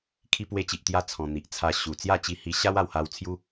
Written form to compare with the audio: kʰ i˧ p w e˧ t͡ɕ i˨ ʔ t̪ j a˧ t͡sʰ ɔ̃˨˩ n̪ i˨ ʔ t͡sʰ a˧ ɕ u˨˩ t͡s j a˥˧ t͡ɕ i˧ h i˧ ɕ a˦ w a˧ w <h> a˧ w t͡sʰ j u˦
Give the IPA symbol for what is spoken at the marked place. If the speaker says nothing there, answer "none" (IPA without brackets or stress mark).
h